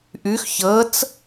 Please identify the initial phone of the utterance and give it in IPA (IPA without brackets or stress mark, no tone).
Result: ʔ